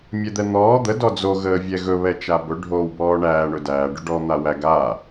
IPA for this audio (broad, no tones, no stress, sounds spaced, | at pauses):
mʲ ɛ d̪ ɛ n̪ ɔː d̪ ə d ɔ d͡z o ɣ əː vʲ ɛ ɣ ɵ β ɛ t͡ʃ a b ɵ ɖʱ oː w b ɔː ɳ æː ɳ ɵ d æː ɖ ɵ ɖ ɔ n̪ a w æ ɡ aː